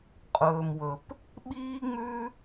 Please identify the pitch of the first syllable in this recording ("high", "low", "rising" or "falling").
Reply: low